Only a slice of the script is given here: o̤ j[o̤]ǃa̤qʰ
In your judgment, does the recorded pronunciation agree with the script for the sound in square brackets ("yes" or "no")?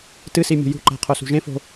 no